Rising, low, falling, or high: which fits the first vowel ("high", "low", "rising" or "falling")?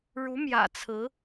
rising